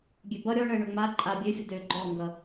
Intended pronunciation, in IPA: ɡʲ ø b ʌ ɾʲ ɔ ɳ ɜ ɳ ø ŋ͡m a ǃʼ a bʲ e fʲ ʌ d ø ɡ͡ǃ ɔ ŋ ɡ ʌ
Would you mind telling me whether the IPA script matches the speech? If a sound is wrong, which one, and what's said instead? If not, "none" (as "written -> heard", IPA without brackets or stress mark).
e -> ø